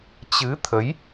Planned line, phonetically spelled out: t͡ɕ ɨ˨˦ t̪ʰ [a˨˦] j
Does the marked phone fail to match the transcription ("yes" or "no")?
yes